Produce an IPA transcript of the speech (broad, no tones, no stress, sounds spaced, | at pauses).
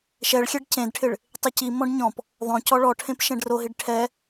ʃ ɛ ɭ xʲ ɛ ɖ c ẽ d ʈʰ ɪ ɭ | tˤ ɪ c i m ɔ̃ ɖ ɲ ɔ̃ p | ðˤ õ c ɔ ɭ ɔ ʈʰ ẽ p ʃ ɛ̃ ɖ r o ɦ i ɖ ʈʰ ɛ